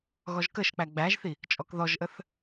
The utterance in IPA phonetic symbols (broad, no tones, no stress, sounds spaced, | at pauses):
ɣ ɔ ʒ k ə ʃ k͡p æ ɡ͡b æ ʒ θ i | t͡ʃʼ ɔ k ð ɔ ʒ ʔ ə θ